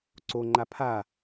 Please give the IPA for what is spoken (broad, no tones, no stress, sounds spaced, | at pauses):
ǀ o ŋ͡ǃ a pʰ a